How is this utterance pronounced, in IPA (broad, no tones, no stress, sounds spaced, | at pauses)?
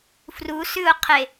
f r u s ʉ ʊ̯ qʰ e